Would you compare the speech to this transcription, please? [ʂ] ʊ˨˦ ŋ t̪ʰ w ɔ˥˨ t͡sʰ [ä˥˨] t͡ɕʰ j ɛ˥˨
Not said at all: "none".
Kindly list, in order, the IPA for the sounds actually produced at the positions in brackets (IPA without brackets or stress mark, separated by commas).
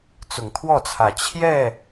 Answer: t͡s, ä˨˩